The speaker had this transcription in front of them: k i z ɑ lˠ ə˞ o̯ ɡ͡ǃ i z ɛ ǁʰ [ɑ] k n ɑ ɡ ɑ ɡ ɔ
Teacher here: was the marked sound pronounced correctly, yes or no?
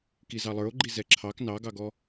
yes